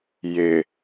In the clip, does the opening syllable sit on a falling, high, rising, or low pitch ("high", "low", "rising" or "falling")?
low